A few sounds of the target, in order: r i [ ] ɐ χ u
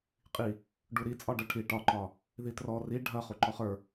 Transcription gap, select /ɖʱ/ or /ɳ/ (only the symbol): ɖʱ